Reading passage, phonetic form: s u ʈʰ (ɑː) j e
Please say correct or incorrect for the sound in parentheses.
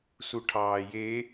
correct